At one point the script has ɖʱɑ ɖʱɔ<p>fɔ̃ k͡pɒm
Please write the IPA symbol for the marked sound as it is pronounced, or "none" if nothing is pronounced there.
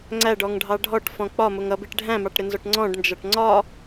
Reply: ʈ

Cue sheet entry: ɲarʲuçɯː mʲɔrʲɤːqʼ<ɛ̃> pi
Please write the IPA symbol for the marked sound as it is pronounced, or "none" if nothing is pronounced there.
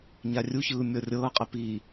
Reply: ɛ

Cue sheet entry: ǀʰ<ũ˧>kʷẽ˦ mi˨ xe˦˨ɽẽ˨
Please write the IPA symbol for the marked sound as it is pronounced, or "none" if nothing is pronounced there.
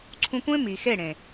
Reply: ũ˧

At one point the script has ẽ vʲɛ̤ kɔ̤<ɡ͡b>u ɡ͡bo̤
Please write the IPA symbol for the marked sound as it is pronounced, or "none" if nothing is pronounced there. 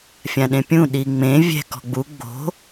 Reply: ɡ͡b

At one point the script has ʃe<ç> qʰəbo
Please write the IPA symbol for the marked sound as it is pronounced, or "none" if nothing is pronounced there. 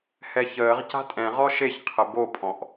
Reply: ç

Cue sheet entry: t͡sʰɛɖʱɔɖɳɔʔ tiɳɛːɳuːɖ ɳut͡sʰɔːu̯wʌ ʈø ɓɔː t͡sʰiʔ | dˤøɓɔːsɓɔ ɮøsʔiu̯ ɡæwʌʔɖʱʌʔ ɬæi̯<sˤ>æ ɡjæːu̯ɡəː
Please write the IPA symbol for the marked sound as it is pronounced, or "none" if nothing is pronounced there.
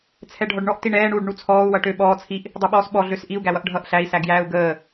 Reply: s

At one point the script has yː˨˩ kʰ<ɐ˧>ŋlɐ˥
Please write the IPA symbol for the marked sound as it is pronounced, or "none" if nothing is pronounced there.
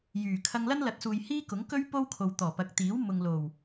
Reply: ɐ˧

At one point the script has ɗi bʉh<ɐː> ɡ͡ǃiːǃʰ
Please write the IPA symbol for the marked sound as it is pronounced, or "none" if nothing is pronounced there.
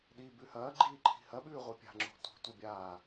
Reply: ɐː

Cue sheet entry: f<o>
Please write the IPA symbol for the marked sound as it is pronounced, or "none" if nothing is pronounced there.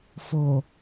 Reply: o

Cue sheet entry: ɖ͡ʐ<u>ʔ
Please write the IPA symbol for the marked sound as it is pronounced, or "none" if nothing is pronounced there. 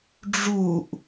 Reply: u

